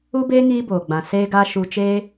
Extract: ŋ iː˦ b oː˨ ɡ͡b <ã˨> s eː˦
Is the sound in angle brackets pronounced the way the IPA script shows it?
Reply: yes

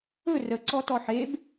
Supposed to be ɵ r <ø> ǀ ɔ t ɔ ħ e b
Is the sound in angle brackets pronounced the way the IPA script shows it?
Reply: no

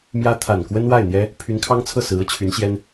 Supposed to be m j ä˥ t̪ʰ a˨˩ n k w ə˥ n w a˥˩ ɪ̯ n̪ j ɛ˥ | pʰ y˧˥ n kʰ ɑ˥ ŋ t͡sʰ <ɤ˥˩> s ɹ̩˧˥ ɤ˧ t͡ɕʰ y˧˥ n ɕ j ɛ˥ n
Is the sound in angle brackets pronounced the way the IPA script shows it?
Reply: yes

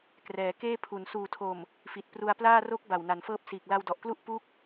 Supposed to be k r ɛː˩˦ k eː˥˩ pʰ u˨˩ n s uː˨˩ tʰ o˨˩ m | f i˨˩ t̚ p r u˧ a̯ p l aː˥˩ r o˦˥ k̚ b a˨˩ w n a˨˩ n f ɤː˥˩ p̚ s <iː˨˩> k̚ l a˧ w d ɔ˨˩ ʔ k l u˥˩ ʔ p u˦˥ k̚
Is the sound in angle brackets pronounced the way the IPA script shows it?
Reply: yes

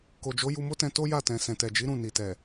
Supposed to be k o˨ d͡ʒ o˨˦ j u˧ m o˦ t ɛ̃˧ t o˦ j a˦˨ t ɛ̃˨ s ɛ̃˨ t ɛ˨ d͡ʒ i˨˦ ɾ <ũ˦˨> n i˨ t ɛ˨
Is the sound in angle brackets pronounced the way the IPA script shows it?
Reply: yes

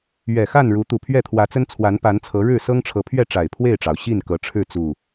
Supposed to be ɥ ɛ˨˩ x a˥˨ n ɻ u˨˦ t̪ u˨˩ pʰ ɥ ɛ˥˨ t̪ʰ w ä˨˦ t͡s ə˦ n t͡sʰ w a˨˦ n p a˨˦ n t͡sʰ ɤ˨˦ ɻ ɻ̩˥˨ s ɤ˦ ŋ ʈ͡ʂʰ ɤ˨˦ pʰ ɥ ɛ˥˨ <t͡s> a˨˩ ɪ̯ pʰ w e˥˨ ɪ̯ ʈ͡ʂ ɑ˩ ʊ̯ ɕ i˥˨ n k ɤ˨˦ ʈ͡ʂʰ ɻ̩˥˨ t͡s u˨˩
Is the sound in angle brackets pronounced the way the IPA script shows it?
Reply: no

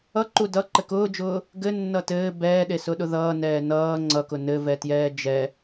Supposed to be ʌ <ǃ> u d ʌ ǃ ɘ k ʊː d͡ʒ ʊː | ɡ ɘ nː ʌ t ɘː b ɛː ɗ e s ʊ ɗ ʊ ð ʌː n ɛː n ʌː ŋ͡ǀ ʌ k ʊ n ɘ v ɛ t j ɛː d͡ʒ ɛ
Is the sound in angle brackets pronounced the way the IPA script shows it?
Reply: yes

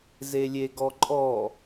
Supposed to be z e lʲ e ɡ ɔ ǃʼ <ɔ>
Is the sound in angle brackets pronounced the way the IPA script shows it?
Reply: yes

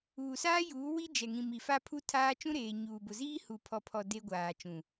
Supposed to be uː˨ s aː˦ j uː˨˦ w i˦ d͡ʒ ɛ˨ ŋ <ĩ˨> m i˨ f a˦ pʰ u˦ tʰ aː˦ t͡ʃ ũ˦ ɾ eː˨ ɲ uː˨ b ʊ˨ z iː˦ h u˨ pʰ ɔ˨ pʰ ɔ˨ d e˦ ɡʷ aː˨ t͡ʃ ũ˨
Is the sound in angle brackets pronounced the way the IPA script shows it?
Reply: yes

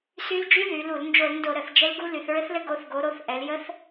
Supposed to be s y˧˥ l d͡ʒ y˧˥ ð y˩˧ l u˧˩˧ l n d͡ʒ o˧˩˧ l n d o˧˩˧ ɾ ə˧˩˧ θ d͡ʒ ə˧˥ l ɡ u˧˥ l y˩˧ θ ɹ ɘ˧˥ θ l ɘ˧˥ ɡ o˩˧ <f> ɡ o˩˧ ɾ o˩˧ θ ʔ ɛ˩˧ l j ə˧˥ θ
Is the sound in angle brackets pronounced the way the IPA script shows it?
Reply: no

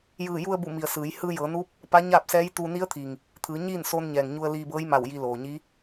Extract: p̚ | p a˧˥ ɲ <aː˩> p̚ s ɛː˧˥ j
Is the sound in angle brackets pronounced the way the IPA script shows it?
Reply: no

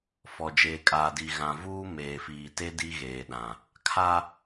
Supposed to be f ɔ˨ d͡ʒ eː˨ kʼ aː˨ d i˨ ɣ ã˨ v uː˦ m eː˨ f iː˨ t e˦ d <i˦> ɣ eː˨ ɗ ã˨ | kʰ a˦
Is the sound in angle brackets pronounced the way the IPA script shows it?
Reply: yes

